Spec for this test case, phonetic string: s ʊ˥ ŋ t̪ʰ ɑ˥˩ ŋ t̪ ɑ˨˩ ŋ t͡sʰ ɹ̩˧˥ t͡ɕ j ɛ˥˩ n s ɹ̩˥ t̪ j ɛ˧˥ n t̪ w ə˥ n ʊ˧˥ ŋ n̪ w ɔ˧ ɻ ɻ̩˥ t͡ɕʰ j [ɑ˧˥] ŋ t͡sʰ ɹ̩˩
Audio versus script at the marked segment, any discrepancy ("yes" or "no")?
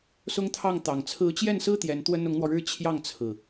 yes